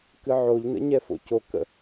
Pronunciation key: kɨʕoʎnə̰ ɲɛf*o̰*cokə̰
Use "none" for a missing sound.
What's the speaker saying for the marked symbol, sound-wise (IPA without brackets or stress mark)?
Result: o̰